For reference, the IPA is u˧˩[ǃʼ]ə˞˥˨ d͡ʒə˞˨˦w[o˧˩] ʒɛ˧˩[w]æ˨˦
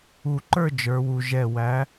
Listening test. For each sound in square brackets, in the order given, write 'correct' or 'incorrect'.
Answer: incorrect: ǃ, incorrect: u˧˩, correct

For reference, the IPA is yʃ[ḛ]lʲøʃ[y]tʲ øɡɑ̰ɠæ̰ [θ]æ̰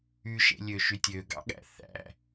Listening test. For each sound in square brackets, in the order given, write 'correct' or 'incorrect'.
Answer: correct, correct, correct

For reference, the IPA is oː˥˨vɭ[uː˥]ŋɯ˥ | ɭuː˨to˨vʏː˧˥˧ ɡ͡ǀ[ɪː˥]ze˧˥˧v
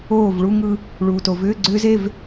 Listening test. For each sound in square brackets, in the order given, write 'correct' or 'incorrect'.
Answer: incorrect: u˥, incorrect: ʏː˥

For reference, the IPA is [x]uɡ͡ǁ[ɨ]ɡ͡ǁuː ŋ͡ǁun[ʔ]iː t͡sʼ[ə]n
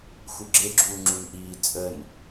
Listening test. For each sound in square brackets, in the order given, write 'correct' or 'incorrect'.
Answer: correct, incorrect: e, correct, correct

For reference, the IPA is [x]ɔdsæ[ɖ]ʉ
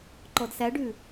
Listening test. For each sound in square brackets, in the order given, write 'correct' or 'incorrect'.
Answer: incorrect: ǃ, correct

